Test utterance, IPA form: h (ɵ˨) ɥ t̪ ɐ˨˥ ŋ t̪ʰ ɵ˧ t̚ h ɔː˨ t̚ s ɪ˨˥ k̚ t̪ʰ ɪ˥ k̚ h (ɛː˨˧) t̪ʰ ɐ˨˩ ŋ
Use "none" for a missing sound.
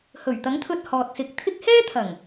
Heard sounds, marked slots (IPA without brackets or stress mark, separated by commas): ɵ˨˩, ɛː˥